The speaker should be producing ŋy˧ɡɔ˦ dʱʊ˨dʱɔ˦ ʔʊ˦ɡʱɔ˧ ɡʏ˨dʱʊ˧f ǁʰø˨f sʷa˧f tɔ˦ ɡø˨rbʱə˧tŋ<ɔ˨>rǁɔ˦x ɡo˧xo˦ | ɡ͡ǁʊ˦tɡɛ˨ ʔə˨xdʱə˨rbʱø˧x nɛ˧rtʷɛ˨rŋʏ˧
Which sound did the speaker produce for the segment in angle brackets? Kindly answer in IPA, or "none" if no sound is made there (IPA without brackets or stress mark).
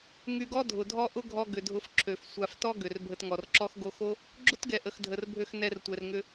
ɔ˨